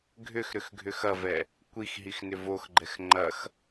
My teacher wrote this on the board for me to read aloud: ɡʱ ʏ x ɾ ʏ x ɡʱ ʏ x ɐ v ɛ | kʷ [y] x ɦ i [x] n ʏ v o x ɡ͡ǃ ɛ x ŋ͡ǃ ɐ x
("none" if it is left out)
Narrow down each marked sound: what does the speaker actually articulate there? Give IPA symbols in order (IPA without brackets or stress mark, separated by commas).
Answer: i, x